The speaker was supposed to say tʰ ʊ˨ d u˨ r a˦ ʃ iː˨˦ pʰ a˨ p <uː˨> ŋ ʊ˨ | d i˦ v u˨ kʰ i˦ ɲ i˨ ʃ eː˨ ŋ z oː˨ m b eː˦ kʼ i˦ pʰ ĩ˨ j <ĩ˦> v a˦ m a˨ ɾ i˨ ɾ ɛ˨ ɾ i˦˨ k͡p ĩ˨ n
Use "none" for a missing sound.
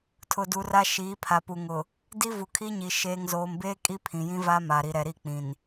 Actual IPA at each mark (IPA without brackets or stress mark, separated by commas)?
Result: u˨, ĩ˦